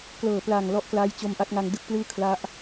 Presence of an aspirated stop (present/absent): present